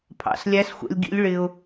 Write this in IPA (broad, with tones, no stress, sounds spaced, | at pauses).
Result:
pʰ ɑ̰˩˧ s lʲ æ˧˥ s xʷ ɛ̰˧ lʲ ɡ ḭ˧˥ lʲ ɭ ɪ˧ ʊ̯